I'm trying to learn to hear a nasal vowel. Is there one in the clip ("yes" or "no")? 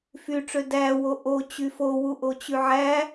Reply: no